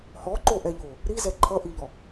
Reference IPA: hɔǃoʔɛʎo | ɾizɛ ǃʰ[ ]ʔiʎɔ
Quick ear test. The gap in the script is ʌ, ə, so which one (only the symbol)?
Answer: ʌ